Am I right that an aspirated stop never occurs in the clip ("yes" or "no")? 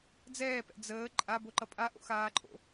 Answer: yes